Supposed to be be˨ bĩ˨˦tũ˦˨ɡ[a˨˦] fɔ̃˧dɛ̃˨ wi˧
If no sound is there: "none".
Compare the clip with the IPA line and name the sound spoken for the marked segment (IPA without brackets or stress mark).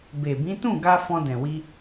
a˧